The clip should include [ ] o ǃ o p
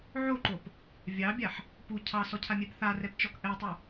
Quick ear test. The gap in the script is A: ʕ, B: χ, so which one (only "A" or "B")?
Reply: A